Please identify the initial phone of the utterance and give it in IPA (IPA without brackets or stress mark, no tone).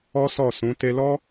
ɔ